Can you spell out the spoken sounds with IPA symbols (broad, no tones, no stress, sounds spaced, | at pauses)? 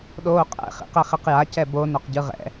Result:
ɗ oː qʼ ɛ̰ χ ḭ q ɛ χ e q j a c ɛ b o n o q ɟ ɯ ʁ ɛ̰